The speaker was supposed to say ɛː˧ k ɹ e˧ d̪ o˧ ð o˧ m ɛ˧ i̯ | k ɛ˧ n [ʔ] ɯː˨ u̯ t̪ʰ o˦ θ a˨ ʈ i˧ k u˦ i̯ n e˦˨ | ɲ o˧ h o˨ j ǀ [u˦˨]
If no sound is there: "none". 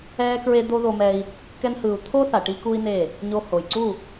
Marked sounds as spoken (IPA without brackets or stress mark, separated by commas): h, u˦˨